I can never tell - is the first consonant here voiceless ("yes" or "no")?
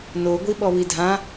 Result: no